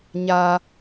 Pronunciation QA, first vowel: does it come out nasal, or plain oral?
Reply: oral